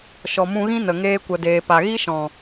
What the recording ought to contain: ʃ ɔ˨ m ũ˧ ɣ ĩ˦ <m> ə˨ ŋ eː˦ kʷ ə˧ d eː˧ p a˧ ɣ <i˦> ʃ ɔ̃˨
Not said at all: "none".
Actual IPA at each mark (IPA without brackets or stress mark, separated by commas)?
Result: n, i˦